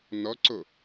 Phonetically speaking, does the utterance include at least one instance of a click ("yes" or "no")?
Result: yes